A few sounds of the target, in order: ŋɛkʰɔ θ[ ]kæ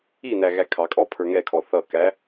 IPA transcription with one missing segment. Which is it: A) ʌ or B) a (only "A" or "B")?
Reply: A